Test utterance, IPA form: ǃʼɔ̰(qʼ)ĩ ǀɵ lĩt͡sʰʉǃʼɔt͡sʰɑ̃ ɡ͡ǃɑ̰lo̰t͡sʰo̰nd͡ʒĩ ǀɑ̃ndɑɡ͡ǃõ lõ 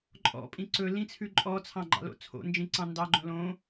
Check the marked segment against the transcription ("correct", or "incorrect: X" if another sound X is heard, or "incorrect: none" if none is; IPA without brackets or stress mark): incorrect: pʼ